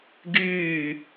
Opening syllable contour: falling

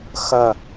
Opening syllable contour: falling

